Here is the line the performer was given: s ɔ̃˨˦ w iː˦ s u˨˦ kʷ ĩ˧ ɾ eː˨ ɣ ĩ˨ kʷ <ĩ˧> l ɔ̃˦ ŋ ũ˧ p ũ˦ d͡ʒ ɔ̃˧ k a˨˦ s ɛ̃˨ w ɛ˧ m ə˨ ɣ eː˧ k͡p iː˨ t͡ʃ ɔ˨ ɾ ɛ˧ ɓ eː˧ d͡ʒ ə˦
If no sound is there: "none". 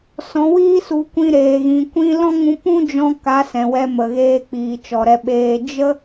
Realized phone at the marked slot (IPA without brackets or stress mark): ĩ˧